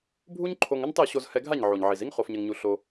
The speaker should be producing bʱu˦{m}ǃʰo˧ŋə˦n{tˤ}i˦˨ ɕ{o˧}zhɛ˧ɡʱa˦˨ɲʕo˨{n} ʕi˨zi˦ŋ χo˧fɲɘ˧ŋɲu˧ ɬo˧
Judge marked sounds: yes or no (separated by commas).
no, yes, yes, no